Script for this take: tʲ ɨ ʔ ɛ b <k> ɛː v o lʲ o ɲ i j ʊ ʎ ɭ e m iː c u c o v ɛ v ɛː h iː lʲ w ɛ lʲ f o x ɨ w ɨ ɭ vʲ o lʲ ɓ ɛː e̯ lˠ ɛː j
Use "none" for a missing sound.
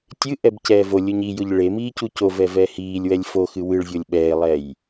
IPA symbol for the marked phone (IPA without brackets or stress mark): c